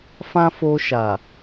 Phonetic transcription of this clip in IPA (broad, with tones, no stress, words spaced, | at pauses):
fã˦fo˧ ʃa˨